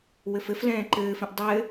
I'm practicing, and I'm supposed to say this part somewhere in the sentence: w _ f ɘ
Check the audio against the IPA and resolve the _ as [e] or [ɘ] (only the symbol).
ɘ